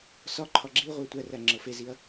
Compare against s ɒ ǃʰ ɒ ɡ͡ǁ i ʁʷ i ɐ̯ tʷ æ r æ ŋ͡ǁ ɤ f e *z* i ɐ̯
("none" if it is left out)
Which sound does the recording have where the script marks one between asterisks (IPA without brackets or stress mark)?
z